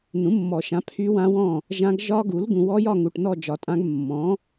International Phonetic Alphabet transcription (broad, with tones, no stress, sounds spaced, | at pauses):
n ũ˩˥ mː ɔ˨˩˦ ʃ ã˩˥ pʰ y˦˥ w ã˦˥ w ɔ̃˥˨ | ʒ ã˦˥ ɡ ʒ ɒ˦˥ ɡ u˩˥ l ɡ ũ˨ w ɔ˦˥ j ɒ˥˨ ŋ u˨ ʈ n ɔ˥˨ d͡ʒ ɒ˨˩˦ tʼ ã˦˥ ɡ mː ɔ̃˩˥